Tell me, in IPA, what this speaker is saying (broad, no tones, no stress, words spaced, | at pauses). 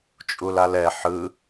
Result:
t͡ʃʼulalɛ ħɯ